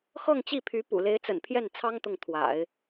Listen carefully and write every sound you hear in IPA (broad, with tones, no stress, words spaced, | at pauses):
xɤ˥˧ŋt͡ɕi˥˩pʰy˧˥pṵ˨˩ le˧˥ɪ̯t͡sə̰˨˩npʰjɛ˥˩nt͡sʰɑ˥ŋ t̪ʊ˥˩ŋt̪ʰwa̰˨˩˦ɪ̯